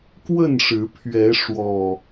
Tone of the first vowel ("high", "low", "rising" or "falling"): falling